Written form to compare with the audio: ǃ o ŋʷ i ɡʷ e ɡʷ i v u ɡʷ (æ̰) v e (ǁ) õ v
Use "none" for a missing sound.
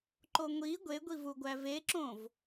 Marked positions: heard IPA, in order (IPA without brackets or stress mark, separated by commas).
æ, ǁ